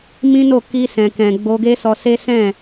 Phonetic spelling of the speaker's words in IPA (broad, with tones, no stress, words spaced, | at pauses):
mĩ˦no˦˨ ki˧sɛ̃˨kɛ̃˨ ɡ͡bo˧ɡe˦sɔ˧se˦ sɛ̃˦˨